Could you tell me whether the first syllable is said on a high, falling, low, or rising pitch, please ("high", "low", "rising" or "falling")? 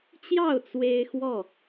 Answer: falling